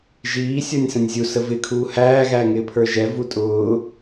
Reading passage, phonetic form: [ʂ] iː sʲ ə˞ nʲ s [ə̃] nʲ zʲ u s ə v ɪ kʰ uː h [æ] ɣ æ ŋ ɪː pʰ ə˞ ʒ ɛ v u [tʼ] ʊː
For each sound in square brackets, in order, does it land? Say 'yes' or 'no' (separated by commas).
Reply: no, yes, no, yes